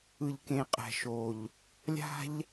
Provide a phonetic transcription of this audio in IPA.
ɯ˨ʎkẽ˨qʼɛ̤˨ʃo˨ʎ | lʲa̤˦ʎ

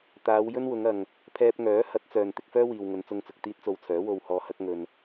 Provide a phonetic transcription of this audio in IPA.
t̪aː˨˧w jɵ˥nwʊ˨˧ŋɐ˨ŋ | pʰɛː˧p̚ŋœː˨˥ hɐ˨˥t̚t͡sœː˨n t̪ɪ˧k̚fœː˥ wiː˨wŋɵ˨˧n t͡sʊ˧ŋt͡sʊ˨k̚ t̪iː˥t̚t͡so˧wt͡sʰœː˨˥ wo˧whɔː˧hɐ˥k̚ ŋɵ˧n

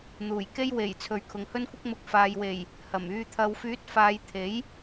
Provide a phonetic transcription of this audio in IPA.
n̪uː˨˩jke˥j we˨˩j t͡sʰɵ˨˧ɥkʰʊ˨ŋhɵ˥nkʷɪ˥k̚ mʊ˧k̚ faː˨jwe˨˩j | hɐ˨˩m yː˨t̪ʰɐ˨wfyː˨˥t̚ faː˨˧jt̪ʰe˨˥j

